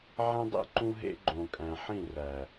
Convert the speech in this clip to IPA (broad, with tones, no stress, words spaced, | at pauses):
ʕẽ˦dˤḭ˦ ǃũ˦ɦḛ˦ɡ͡ǃõ˨kʼæ̃˨ ħĩ˦˨ræ˨